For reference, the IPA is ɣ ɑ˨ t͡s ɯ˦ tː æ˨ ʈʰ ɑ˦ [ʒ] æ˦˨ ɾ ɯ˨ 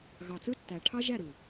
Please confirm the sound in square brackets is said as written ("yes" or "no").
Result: yes